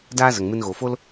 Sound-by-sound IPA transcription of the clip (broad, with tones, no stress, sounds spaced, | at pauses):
d aː˦ z ə˨ ŋ m ɨ˧ n ɣ oː˨ f o˦ l